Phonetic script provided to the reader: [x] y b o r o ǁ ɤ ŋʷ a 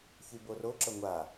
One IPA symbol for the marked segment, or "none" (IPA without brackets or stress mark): ç